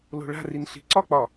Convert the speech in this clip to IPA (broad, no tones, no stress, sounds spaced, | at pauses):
l o̤ ɭ a̤ r i n ɬ i̤ ǀ ɒ k͡p ɒ